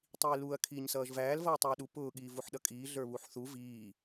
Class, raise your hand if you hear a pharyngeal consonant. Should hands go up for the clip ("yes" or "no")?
yes